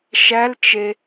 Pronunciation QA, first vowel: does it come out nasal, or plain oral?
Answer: oral